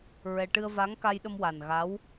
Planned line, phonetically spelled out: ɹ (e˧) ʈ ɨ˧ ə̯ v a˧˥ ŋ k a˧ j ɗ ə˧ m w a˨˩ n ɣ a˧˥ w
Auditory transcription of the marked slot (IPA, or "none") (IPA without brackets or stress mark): ɛ˧